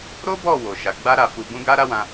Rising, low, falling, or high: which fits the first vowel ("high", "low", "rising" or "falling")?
high